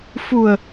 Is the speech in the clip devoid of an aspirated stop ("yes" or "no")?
yes